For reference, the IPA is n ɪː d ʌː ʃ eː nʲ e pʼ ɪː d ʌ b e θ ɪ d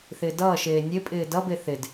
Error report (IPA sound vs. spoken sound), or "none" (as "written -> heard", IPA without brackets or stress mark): n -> θ